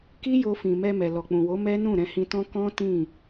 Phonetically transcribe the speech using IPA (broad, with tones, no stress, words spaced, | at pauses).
ki˦jo˧fĩ˨mɛ˧ mɛ˨lɔ˨k͡pũ˨wo˨˦ mɛ˦ nũ˦˨ɾɛ̃˧hĩ˧tɔ̃˦ kɔ̃˦tĩ˦˨